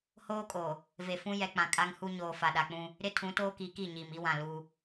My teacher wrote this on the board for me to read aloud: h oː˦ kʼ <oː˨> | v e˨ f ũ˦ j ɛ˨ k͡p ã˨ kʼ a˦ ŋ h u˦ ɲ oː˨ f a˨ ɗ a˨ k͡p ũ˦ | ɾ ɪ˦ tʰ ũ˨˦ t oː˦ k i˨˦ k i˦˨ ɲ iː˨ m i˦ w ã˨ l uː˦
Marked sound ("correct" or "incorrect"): correct